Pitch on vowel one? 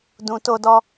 low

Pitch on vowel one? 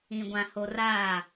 low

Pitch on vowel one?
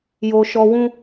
high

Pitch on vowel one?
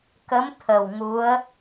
rising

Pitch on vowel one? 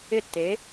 falling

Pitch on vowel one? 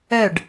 falling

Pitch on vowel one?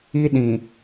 high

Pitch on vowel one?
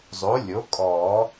rising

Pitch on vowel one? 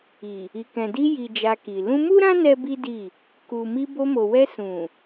low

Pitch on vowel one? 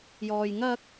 low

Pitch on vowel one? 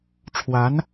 rising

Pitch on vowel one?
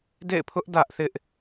falling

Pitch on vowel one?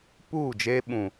falling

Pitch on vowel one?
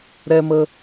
high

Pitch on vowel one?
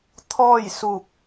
falling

